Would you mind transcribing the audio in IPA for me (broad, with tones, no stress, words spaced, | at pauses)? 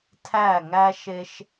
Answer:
tʰæ˦˨ŋæ˦ʃe˦ʃ